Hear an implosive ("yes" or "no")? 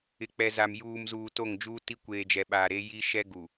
yes